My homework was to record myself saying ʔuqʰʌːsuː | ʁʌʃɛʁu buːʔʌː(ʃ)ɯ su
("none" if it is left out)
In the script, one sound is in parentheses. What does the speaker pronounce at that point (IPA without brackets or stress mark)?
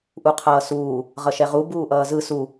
z